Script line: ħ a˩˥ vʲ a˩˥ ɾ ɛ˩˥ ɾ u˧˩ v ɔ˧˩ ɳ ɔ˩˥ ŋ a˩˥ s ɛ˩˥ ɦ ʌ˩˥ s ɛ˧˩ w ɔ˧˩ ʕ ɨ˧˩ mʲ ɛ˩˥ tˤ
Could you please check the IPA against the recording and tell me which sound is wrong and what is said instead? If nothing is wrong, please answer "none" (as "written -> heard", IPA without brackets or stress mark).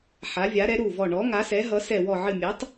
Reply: none